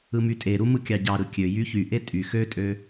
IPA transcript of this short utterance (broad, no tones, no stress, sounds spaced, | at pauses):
ɯ m y tʼ e ɾ u m ɯ kʲ ɑ ɟ ɑ ɾ ɯ kʲ ø j y ç y ʔ e tʼ y x ø tʼ ø